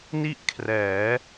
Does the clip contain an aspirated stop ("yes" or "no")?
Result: yes